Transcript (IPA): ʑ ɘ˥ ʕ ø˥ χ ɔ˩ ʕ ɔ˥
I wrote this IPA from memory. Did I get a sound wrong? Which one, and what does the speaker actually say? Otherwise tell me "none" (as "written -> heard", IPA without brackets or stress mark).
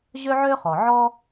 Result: ɘ˥ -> ø˥